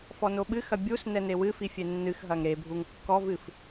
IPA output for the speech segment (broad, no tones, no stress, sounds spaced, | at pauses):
f ɔ n o ɓ ɨ x ɐ bʲ u s n ɛ n e w ɨ f i fʲ e nː ɨ x ɦ ɐ ŋ ɾ e bʱ u ŋ kː ɔ v ɨ f